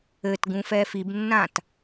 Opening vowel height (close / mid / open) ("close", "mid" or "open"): mid